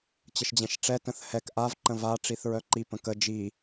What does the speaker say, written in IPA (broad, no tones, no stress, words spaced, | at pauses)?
t͡ɕəʃd͡ʑɛ̃ʃʈ͡ʂɛ tə̃θhɛk ʔav ǃə̃va ʈ͡ʂiθɹœǃi pə̃kə d͡ʒi